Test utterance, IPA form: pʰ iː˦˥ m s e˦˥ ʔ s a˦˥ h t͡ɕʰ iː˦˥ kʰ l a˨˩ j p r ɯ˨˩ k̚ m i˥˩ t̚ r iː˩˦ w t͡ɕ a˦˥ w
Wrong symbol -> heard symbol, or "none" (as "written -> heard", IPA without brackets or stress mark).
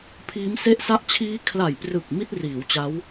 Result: h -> ʔ